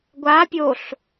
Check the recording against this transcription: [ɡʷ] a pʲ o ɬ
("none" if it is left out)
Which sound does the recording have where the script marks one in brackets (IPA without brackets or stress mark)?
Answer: ɡʷ